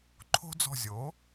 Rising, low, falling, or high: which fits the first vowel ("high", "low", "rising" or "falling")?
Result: high